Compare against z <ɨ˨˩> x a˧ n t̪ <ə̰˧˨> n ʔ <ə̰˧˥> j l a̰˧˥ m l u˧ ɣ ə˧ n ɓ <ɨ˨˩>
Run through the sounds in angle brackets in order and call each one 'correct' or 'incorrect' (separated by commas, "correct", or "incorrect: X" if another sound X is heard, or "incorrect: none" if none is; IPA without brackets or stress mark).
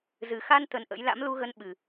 correct, incorrect: ə˨˩, correct, correct